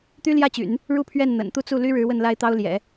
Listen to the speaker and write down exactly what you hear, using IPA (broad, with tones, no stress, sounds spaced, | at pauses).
t̪ y˥ l j ä˥˩ t͡ɕ y̰˨˩˦ n | ɻ u˥˧ pʰ ɥ ɛ˥˩ n n̪ ə̰˨˩ n t̪ u˥˧ t͡s u˥˩ l y˥ ɻ ɻ̩˧˥ w ə˥˩ n l a˥ ɪ̯ t̪ ɑ˥ ʊ̯ l j ɛ̰˨˩˦